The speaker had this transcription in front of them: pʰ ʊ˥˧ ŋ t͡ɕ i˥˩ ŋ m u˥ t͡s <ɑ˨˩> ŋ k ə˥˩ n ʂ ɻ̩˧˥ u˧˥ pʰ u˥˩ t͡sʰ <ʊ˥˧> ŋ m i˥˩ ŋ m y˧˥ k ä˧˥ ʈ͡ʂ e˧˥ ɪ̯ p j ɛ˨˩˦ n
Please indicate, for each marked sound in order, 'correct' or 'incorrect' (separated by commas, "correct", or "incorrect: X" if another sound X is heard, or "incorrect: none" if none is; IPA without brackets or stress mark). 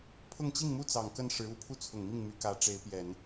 correct, incorrect: ʊ˨˩